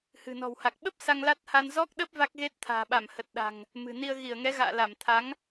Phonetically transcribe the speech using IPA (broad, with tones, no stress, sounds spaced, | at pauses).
h ɨ̤˨˩ n ɔ̤˨˩ w h a˨˩ k̚ ɓ ə˦˥ p̚ s a˧ ŋ l a˦˥ t̚ h a˧ n z ɔ˦˥ k̚ ɗ ə˦˥ p̚ v a˦˥ k̚ ɣ e˦˥ t̚ t̪ʰ a̤ː˨˩ ɓ a˧˩ m h ə˨˩ t̚ ɗ a̤˨˩ ŋ | m ɨ̤˨˩ n i˧ ə̯ ɣ i˧˩ ə̯ ŋ ɛ˨˦ ɣ a̰ː˧˨ l a˧˩ m t̪ʰ a˨˦ ŋ